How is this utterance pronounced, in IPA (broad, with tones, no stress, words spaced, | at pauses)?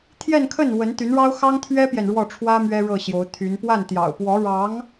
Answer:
t̪ʰjɛ˥˧nkʰə˥˩n wə˧˥nt̪y˧˥nɻɑ˥ʊ̯ xɑ˥ŋt̪ʰɥɛ˥pjɛ˨n ɻwɔ˥˩ʈ͡ʂʰwä˥ mɥɛ˥ɻɤ˥˩ɕjo˧˥ʊ̯t̪ʰy˧˥n pwa˥˩nt̪jɑ̰˨˩ʊ̯ pwɔ˧˥ɻɑ˧˥ŋ